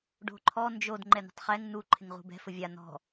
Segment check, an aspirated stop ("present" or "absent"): present